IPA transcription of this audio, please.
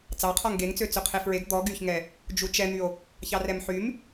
t͡s ɑ qʰ ɔ ŋ ɡ e ŋ t͡s ø t͡s ø qʰ e f ɹ e ɡ d̪ ɔ ɡ y ç ŋ ɛ | d͡ʒ u t͡ʃ ɛ n̪ y o̯ | ç ɑ r ɛ m ħ y m

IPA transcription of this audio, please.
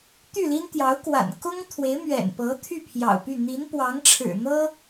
t̪ y˥˩ l i˥ n t̪ j ɑ˧˥ ʊ̯ k w a̰˨˩ n k ʊ˥ ŋ t̪ʰ w e˧˥ ɪ̯ m ɥ ɛ̰˨˩ n p ɤ˧˥ t̪ʰ y˥˩ pʰ j ɑ̰˨˩ ʊ̯ p y˥˩ n̪ i˧˥ n p w ɑ˧˥ ŋ ʈ͡ʂʰ ɻ̩˨˩ n̪ ɤ˥

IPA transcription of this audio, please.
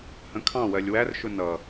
h ə̃ kʰ ɑ̃ w ɜ lʲ w æ r ʃ ʊ n ʌ

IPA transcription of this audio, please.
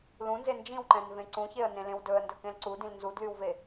l ũ n z e n d͡ʒ ĩ w ǃ ɛ̃ n v ẽ ǀ ũ ç e ə̯ n ẽ l ẽ w d ɵ ə̯ n d ɵ k ẽ l ǀ u d ĩ l n z u d l y w v e

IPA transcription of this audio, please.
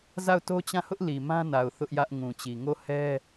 z a˦˨ ʊ̯ t o˦ t͡ɕ ã˦˨ h ʊ˦ ʔ l i˨ m ã˦ n a˨ ʊ̯ θ ʊ˦ ʔ j ä˦ ʔ ŋ ũ˨ t͡ɕ i˨ ŋ o˦˨ h ɛ˦

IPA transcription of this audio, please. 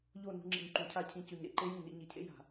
ʎ o˦˨ n ṳ˧ ŋ͡ǁ ḭ˨ ɲ ǃ ũ˨ cʰ a˦˨ cʰ ĩ˧ c ʉ˨ ɲ ɾ ḛ˨ ǃ e˦ j ĩ˦˨ n ḭ˧ ɲ i˨ cʰ ḛ˦ j a̤˨

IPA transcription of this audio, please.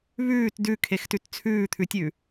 β ʉː t d ʉ kʰ e x t ʉ t t͡sʰ ʉː t̪ʰ ʉ tʲ ʉ

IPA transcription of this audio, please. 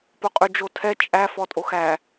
p o qʼ y d͡ʒ o tʰ ɛ t͡ʃʼ æ f ɔ tʼ o x æ

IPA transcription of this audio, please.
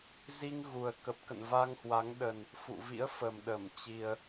z i˧ ŋ ɣ u˨˩ ə̯ k ə˨˩ p̚ k ə̰˧˨ n v a˧ ŋ h w a˨˦ ŋ ɗ ə˨˩ n | f ṵ˧˨ v ḭ˧˥ ə̯ f ə˨˩ m ɗ ə˧˩ m t͡ɕ i˨˩ ə̯

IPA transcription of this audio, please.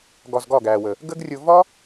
ɡ ɒ˧ z ɡ ɒ˦˨ ɡ æː˨ w ə˨ | ɡ ə˦ ɡ rʲ ʊ˧ v ɒ˦

